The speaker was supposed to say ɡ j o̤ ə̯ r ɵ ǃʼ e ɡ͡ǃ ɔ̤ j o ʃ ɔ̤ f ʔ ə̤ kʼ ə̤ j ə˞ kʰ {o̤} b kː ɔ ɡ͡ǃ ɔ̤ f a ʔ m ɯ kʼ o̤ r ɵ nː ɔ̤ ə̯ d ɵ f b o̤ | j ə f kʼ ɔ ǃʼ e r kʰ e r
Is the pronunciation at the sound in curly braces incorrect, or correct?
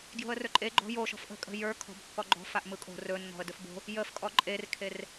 incorrect